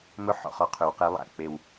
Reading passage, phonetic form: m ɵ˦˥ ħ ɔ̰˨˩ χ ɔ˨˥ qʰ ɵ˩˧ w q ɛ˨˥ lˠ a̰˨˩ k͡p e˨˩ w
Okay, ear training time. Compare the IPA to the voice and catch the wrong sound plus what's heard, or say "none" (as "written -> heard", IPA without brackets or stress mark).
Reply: none